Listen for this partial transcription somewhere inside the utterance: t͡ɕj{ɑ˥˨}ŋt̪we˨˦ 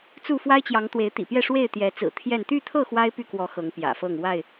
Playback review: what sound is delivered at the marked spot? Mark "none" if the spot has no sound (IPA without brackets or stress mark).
ɑ˨˦